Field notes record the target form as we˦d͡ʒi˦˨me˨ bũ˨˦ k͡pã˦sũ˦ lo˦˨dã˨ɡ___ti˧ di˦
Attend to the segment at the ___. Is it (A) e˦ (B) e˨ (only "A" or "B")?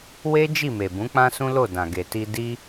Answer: B